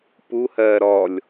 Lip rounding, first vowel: rounded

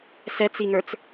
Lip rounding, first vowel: unrounded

